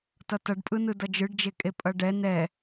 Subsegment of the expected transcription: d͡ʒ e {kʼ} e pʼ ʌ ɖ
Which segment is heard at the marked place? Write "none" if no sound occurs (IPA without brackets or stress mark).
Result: kʼ